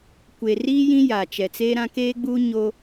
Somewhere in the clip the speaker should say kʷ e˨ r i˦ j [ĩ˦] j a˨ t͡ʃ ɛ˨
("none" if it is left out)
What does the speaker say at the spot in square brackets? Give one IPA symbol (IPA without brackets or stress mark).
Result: ĩ˦